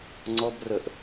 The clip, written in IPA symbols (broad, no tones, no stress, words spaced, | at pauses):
ŋ͡ǀɔbrəʔ